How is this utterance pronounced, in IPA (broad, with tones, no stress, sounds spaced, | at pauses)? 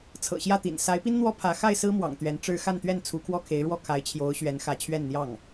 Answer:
t͡sʰ ɤ̰˨˩ ɕ j ä˥˩ t̪ ḭ˨˩ n s a˧˥ ɪ̯ p i˥ n n̪ w ɔ˥ pʰ ä˧˥ x a˥˩ ɪ̯ s ɹ̩˥ m w ɑ̰˨˩ ŋ t̪ ɥ ɛ˧˥ n ʈ͡ʂ ɻ̩˥ x a˥˧ n t̪ ɥ ɛ˥˩ n t͡sʰ u˧˥ kʰ w ɔ˥˩ kʰ e˧˥ ɪ̯ ɻ w ɔ˥˩ kʰ a˧˥ ɪ̯ t͡ɕʰ j o˧˥ ʊ̯ ɕ ɥ ɛ˧˥ n x ä˧˥ t͡ɕʰ ɥ ɛ˥˧ n n̪ j ɑ˥˩ ŋ